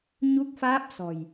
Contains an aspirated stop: no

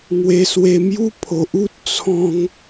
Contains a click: no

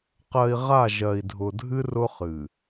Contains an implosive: no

